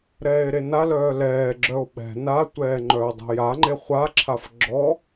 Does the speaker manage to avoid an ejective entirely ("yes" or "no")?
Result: yes